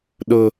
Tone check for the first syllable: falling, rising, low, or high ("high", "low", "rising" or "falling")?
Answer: high